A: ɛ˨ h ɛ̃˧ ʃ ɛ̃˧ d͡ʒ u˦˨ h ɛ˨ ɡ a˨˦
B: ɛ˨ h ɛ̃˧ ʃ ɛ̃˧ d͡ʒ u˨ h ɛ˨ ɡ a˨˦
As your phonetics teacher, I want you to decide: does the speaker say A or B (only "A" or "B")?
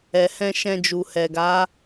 B